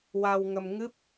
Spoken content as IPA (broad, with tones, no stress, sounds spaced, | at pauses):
w a˧ w ŋ ə˧ m ŋ ɨ˦˥ p̚